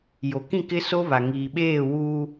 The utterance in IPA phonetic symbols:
j o˨ k ĩ˦˨ k ɪ˦ s o˦ β a˨ ŋ iː˨ ɓ eː˦˨ w uː˦

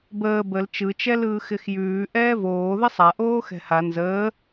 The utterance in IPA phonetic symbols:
b əː b ə l t͡ʃ ɯ t͡ʃ ɛ l ɯː x ɪ x j ʉː ʔ ɛː v oː ð ə sˤ a ʔ oː x ɛ̤ h a n z əː

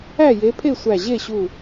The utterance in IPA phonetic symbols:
æ˥˨ j e˨˦ pʰ e˥˨ sʷ æ˧˩ ʑ e˥˨ ɕ u˧˩

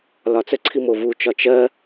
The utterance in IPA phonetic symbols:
l ɒ t͡s ə ǀʰ i m o v u t͡ʃ ɒ t͡ʃ ɜ

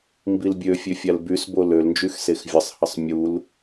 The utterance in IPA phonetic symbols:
m b i l bʲ ø fʲ ø fʲ a l b y s b o l ø l n d͡ʒ y x s e x vʲ ə sˤ h ə sˤ mʲ u l

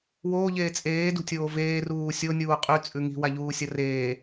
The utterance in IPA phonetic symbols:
w oː ʎ eː t͡sʼ eː d ṳ tʲ oː v eː r uː sʲ o nʲ uː qʼ ʉ t͡sʼ ʉ ŋ i̤ w a ʎ uː sʲ ɐ r eː

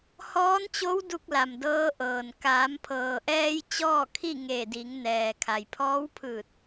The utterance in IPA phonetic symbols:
h ɔː˧˥ n t͡ɕ o˧˥ w d u˧ k̚ l a˩ m d ɤː˧˥ ʔ ɤː˩ n k aː˩˧ m pʰ ɤː˩ ʔ ɛː˧ j t͡ɕ ɔː˥˨ kʰ i˥˨ ŋ e˧˩ d i˩˧ ŋ n ɛː˩ kʰ a˩ j pʰ ɔː˧˥ w pʰ ɯː˧˩ t̚

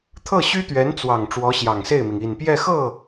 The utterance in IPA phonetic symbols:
t̪ʰ ɤ˥˩ ɕ y˥ t̪ ɥ ɛ˧˥ n t͡s w ɑ˨˩ ŋ ʈ͡ʂ w ɔ˧˥ ɕ j ɑ˨˩ ŋ s e˥˩ ɪ̯ m i˩ ŋ i˨˩ n p j ɛ˥˧ x ɤ˥˩

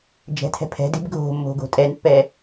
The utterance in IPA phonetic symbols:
d͡ʒ ɛ̤ tʰ ɛ̤ pʰ ɛ̤ d e̤ b ɡʱ o̤ mː o̤ ɡ o̤ tʼ ɛ n pː ɛ

